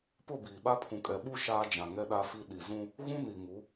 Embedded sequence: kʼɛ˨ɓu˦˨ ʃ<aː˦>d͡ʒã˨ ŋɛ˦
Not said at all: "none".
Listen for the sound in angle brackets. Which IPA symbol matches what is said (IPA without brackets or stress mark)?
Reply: aː˦